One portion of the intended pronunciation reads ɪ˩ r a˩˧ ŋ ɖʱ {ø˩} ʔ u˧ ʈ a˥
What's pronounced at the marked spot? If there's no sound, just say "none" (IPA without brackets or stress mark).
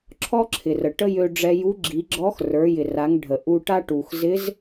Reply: ə˩